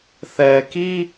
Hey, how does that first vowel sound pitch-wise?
low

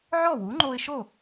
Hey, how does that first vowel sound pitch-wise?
falling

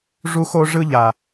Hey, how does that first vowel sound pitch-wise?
high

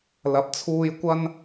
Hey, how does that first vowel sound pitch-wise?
rising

